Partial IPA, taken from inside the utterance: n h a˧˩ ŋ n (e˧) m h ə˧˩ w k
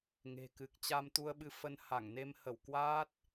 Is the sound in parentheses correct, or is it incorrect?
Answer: correct